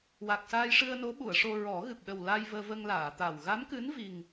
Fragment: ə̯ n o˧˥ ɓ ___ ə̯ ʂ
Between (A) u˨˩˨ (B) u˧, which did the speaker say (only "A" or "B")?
A